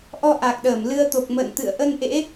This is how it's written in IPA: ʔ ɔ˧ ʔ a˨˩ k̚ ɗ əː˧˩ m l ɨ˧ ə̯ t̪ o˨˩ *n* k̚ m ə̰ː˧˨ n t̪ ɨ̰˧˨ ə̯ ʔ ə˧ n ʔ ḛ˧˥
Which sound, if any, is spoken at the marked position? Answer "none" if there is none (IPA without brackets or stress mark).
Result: none